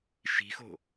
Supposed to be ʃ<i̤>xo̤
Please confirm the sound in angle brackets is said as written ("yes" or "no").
yes